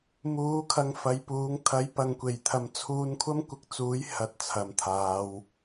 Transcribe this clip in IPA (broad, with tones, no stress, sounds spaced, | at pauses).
m uː˨˥ kʰ ɐ˧ ŋ f ɐ˨˧ j p uː˨˥ ŋ t̪ʰ ɐ˨˧ j p ɐ˨ ŋ kʷ e˨˩ j t̪ʰ ɐ˨ m t͡sʰ uː˧ n kʷʰ ɐ˥ m kʷ ɪ˧ k̚ t͡s uː˨˥ j h ɐ˧ t̚ t͡sʰ ɐ˨ m t̪ʰ aː˨˧ w